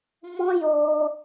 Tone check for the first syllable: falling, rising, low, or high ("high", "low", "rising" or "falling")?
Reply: high